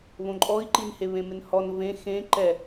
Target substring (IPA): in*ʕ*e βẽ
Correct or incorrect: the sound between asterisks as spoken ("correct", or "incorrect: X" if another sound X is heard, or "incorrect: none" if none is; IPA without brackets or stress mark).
incorrect: h